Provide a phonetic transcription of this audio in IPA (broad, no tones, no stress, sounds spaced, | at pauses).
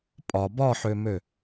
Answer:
pʼ ɒ b ɒ ħ ø m ø